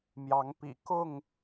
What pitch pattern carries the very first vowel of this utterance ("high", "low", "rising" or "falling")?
rising